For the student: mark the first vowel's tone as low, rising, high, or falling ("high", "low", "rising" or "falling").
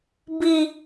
high